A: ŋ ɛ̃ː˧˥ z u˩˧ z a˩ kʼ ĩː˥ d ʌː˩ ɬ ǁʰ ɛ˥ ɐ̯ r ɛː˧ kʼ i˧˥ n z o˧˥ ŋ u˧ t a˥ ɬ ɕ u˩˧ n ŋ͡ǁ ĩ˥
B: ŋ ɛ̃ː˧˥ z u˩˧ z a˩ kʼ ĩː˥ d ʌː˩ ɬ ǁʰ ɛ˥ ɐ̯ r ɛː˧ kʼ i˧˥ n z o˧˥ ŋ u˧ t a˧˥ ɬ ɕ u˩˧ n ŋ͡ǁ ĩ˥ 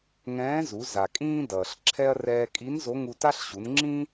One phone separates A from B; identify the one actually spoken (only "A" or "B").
A